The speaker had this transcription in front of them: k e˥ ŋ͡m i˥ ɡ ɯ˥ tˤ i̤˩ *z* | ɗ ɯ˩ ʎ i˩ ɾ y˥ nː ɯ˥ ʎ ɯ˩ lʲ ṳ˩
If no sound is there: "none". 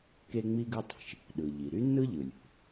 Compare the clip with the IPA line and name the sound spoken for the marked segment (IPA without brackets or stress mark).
ʃ